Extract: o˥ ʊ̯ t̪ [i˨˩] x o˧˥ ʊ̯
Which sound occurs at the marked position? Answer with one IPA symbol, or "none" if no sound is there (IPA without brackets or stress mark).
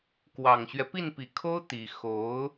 i˨˩